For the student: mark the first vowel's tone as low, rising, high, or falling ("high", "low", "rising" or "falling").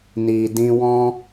low